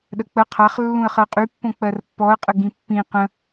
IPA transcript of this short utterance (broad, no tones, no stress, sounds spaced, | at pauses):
ɗ ə k͡p ə qʰ a χ lː ũ ə̯ χ ɜ qʼ y pː õ k͡p ɜ r pː ɔ ə̯ qʼ ə ɡ ĩ pː ĩ q ə̃